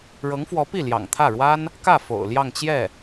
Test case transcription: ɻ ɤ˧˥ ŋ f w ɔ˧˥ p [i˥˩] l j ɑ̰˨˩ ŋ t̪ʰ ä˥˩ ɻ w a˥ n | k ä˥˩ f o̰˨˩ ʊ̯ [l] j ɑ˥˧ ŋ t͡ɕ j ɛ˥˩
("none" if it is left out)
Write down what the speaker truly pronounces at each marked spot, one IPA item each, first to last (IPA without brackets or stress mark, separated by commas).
i˥˩, l